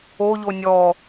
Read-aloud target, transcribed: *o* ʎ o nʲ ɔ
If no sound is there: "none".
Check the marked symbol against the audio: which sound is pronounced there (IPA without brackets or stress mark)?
o